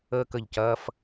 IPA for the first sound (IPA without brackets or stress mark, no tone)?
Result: əː